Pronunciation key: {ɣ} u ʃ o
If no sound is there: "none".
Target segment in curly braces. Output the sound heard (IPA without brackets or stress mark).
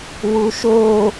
w